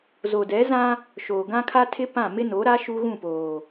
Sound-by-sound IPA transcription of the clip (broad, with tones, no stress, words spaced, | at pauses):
zo˨dɛ˨˦zã˦ | ʃoː˨ɡã˦kʰa˦tʰɪ˦ pã˦˨ mɪ˦no˨˦ɾa˦ ʃu˦ɣũ˦˨poː˨